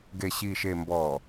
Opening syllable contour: low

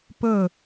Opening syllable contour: falling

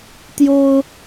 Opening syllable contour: high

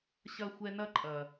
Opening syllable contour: high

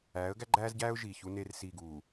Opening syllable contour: rising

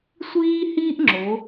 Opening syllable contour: high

